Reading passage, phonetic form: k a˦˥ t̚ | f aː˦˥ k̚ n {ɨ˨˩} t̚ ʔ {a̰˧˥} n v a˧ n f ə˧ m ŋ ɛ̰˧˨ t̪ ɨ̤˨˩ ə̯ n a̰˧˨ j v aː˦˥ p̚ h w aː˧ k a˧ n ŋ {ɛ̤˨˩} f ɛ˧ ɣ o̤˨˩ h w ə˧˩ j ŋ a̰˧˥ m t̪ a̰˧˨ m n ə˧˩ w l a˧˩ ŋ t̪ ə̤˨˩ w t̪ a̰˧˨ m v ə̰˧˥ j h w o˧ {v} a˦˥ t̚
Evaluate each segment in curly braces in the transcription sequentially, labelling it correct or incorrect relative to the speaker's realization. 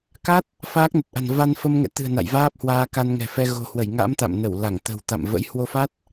incorrect: ə˨˩, incorrect: a̤˨˩, correct, incorrect: f

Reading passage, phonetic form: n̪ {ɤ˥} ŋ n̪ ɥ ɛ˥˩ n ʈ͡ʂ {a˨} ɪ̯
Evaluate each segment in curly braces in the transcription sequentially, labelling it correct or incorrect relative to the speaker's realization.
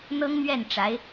correct, incorrect: a˧˥

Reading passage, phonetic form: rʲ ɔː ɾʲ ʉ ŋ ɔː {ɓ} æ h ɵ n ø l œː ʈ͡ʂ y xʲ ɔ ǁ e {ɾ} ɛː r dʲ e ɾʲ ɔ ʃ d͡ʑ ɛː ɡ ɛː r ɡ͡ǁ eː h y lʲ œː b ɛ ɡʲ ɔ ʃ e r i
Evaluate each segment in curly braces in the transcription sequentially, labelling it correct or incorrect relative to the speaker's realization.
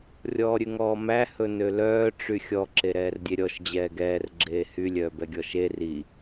incorrect: m, correct

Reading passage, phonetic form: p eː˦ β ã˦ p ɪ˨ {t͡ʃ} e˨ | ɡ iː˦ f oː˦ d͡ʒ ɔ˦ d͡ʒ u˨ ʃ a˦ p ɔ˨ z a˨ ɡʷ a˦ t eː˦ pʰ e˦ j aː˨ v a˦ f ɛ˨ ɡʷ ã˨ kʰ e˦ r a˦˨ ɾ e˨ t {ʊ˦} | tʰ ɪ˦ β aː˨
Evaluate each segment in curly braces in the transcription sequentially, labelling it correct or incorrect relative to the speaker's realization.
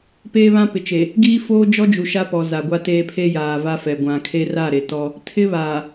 correct, incorrect: ɔ˦

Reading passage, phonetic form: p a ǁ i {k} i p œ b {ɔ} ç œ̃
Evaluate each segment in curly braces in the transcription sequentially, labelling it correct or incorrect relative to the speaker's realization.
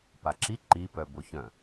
incorrect: ǃ, incorrect: o

